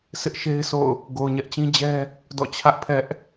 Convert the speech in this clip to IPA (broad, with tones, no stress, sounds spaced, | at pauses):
s ɪ˦ ʔ ʃ e˦ ɪ̯ s o̰˦˨ ʊ̯ | ɡ o˨ ʊ̯ ɲ ɛ˦ ʔ t͡ɕ ĩ˦ d͡ʑ ɛ˦ | d ɔ̰˦˨ t͡ɕʰ ä˦ ʔ pʰ ɛ˦ ʔ